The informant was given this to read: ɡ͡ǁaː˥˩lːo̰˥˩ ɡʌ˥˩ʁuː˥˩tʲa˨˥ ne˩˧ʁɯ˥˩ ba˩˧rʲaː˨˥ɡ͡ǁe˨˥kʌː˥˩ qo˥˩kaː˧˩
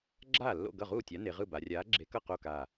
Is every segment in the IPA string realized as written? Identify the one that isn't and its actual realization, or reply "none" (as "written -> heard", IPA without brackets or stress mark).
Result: ʌː˥˩ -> ʌ˥˩